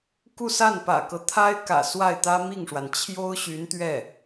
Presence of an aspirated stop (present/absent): present